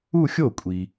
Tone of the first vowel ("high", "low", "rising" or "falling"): falling